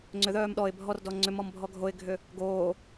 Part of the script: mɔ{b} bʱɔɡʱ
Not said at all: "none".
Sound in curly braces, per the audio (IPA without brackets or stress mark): m